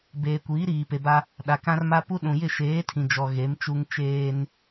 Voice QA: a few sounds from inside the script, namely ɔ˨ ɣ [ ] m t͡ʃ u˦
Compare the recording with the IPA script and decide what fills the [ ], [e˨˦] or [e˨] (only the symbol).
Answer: e˨˦